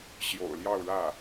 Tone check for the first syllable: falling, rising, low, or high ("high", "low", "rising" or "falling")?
low